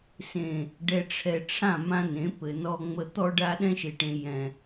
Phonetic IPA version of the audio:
s ẽ˨ | ɖ ɛ˨ ʈ͡ʂʰ ɛ˨ ʈ͡ʂʰ ã˦˨ m ã˦ n ẽ˨˦ p ɘ˨ n ɔ˨ ŋ͡m ə˨ t̪ ɔ˦ ɖ a˦ ɗ ɛ̃˦ ʃ e˨ ʈ ẽ˨ j ɛ̃˨

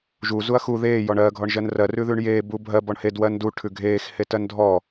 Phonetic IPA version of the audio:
ʒ u z u ɐ̯ x u ð eː j ɔ ɳ ɜː ɡʱ ɔ ɳ ʒ ɜ n r ɜ r ʉ ð ʉː ɳ j eː b u bʱ ɜ b ɔ ɳ h e d w ɜ n d u ʈʰ ʉ ɡʱ eː x h e t ɜ n dʱ ɔ

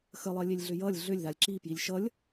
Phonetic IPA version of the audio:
x ə lˠ ɜ lʲ e lʲ ɮ ʏ j ʌ lʲ ɮ ʏ lʲ ð a lʲ ǁ i p j i lʲ ʃ ʌ lʲ

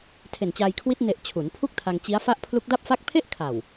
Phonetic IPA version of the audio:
tʰ e˨˩ n t͡ɕ aː˧ j kʰ w i˦˥ t̚ n e˨˩ ʔ t͡ɕʰ u˩˦ n pʰ u˥˩ k̚ tʰ a˧ ŋ t͡ɕ i˦˥ a̯ f a˥˩ ʔ pʰ l u˦˥ k̚ d a˥˩ p̚ f a˥˩ k̚ pʰ e˥˩ ʔ kʰ a˨˩ w

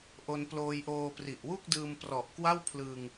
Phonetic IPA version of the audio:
ʔ o˧ n p l oː˧ j ʔ oː˧ p r i˨˩ ʔ w u˥˩ k̚ d ɯː˧ m p r ɔ˨˩ ʔ k w a˥˩ w pʰ l ɯ˧ ŋ

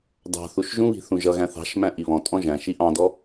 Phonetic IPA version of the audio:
d ɑ̤ θ u ʃ ʒ ũ β i̤ θ ũ ʒ ʌ ɣ æ̃ θ ɑ̤ ʃ m æ̃ ʔ i β ɔ̃ tʼ ɔ̃ ʒ æ̃ ʃ i ʔ ɑ̃ d ɔ

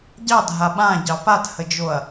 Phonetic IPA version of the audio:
ɟ ɑ dʱ a ɓ ã ɟ ɑ p a t h ə d͡ʒ o ɐ̯

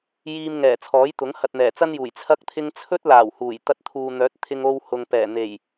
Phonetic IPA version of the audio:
j iː˧ m ŋ ɛː˨˩ t͡sʰ ɔː˨˥ j t̪ ʊ˨˥ ŋ h ɐ˨ t̚ n̪ ɛː˨˩ t͡s ɐ˥ n j uː˨˩ j t͡sʰ ɐ˥ k̚ t̪ʰ ɪ˥ ŋ t͡sʰ ɵ˥ t̚ l aː˨˩ w h uː˨˩ j t̪ ɐ˧ t̚ t̪ʰ uː˨ n̪ œː˨˥ t̚ t̪ʰ ɪ˧ ŋ o˧ w h ʊ˨ ŋ p ɛː˨˩ n̪ e˨˩ j

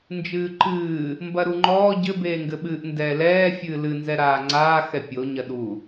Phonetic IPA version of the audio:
n d͡ʒ ɨː ǃ ɨː | m b ɐ ɾ u ŋ͡ǃ ɔː ɟ ɘ b eː ŋ ɡ ɘ ɓ ɨː ʔ n d ɛː l ɛː fʲ ɨː l ɨ n z ɛ ɾ aː ŋ͡ǀ aː x ɛ pʲ o ɲ ɐ ɗ u

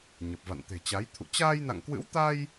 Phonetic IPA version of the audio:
ɲ ə˨˩ p̚ v a̰˧˨ n t̪ e̤˨˩ t͡ɕ a˨˦ j t̪ʰ ṵ˧˨ t͡ɕ aː˧ j n a̰˧˨ ŋ k w ɨ̰˧˥ w t̪ a˧ j

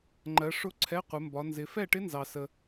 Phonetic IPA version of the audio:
ŋ͡ǃ ɜ˨˦ ʂ ʊ˦˥ ǀʰ ɛ˧˥˧ qʷ ɪ˨˦ m b ɒ˨˦ n z ɪ˨˦ f ɛ˥˨ ʈ ɪ˦˥ n z ɑ˨ s ə˨

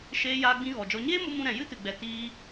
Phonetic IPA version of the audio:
ʃ eː˧ j aː˧ ɡ͡b ĩ˧ ɣ ɔ˨ d͡ʒ ɔ˧ ɲ eː˦ m o˧ m ũ˧ ɾ ɛ̃˨ j ɨ˦ t ɨ˨ ɡ͡b ɛ˨ t iː˦

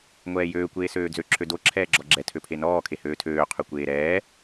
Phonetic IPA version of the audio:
ŋʷ ɛː j øː kʷ eː s øː d͡z ø ǁʰ ø d o ǁʰ ɛː ɡ͡ǁ ɔ ɡ͡ǁ ɛ tʰ ø pʰ e n ɔː kʰ e h øː tʰ øː qʰ ø kʷ eː ɾ ɛː

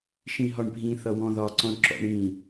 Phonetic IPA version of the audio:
ʃ ĩ ɦ ɒ ɳ bʱ ĩ θ ʌ w ɔ̃ ð ɒ ǀ ɔ̃ ɳ ǁ ɔ̰ ɳ ĩ

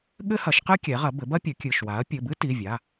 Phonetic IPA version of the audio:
ɠ ɘ˥ h ɐ˩˥ ʃ q ɨ˥ kʲ ɛ˩˥ ʁ ɐ˩˥ b ɘ˩˥ b ɐ˥ pʲ ɘ˩˥ kʲ ɨ˩˧˩ ʃ w a˩˥ ɐ̯ pʲ ɘ˩˧˩ b ɨ˥ t i˩˧˩ vʲ a˩˧˩

